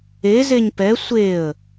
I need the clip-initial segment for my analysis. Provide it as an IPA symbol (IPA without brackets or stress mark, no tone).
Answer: e